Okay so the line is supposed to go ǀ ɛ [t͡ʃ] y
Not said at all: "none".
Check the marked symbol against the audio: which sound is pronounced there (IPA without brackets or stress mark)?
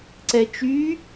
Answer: t͡ʃ